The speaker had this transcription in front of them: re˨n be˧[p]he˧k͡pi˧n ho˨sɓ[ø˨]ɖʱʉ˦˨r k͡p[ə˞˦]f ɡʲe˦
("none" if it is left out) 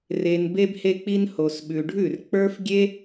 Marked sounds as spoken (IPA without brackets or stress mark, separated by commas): b, ʉ˨, ə˞˦